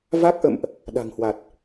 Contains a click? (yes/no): no